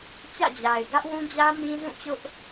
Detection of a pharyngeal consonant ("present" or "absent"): absent